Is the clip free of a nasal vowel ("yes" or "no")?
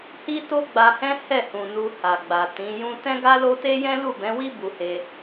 no